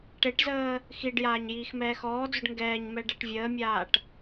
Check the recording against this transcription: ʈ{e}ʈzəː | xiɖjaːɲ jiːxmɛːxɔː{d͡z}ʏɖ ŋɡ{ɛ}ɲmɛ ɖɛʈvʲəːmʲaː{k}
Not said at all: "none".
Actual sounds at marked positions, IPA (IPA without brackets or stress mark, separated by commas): e, d͡z, ɛː, ʈ